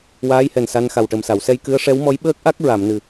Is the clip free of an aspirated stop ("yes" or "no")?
yes